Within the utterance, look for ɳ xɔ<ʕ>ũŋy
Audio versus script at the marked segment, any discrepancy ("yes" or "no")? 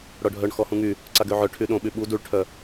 yes